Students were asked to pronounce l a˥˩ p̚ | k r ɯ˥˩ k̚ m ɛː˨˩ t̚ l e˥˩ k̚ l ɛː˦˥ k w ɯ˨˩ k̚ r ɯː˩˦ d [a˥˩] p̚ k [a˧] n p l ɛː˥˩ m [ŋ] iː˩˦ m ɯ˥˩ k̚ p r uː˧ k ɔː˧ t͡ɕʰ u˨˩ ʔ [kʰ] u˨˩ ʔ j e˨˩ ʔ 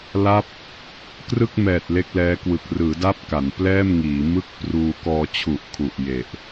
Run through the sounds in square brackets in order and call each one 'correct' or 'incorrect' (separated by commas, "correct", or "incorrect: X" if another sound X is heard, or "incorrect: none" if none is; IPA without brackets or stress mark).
incorrect: a˦˥, incorrect: a˩˦, correct, correct